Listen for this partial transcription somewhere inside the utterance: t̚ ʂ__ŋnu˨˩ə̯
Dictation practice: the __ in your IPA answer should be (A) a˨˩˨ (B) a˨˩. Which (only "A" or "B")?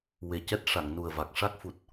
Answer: A